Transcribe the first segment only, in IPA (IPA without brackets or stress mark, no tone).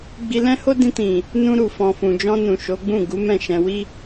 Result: ɡ͡b